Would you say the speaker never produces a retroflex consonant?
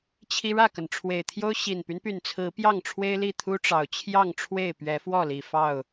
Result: no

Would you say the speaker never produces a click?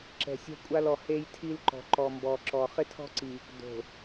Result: no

